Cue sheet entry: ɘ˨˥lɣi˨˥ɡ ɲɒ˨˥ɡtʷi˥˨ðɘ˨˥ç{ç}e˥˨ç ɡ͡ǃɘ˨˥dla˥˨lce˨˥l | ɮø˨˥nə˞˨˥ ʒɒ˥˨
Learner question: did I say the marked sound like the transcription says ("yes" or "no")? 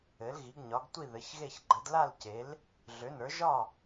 no